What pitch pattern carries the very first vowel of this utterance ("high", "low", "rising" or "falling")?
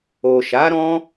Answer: low